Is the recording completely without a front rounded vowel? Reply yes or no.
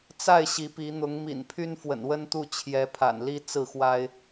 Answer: no